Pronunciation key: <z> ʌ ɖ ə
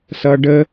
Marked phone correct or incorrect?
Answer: incorrect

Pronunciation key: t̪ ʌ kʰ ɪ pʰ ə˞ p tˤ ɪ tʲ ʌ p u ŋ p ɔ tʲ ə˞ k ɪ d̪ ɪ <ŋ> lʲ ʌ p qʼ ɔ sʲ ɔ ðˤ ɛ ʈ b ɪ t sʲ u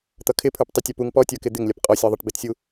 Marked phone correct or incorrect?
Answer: correct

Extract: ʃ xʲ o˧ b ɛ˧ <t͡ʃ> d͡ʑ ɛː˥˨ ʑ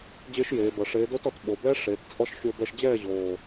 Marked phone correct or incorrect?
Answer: incorrect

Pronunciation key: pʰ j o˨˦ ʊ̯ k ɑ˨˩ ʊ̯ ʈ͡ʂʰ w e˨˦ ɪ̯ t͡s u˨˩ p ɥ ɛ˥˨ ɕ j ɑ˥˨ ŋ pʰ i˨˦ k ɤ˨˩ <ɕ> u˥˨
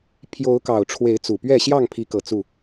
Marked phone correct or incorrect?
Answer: incorrect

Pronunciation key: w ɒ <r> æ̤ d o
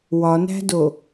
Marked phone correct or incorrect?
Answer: incorrect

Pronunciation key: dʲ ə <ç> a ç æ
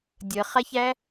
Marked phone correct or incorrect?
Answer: incorrect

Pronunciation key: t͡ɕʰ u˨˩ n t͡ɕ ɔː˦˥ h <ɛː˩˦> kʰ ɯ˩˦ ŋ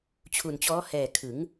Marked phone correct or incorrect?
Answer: incorrect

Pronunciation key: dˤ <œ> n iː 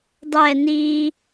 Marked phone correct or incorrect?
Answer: incorrect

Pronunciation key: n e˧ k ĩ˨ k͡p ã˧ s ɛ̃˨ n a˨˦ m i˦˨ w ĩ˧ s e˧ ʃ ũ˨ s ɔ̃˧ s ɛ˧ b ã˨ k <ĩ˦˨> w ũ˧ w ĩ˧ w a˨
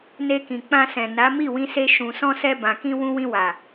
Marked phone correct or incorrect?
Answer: incorrect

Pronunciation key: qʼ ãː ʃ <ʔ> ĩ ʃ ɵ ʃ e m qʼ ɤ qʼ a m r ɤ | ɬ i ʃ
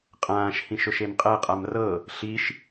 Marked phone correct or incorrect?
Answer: incorrect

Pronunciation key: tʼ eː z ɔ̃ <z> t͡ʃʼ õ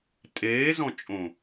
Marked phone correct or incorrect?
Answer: incorrect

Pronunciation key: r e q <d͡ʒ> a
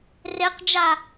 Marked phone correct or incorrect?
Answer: correct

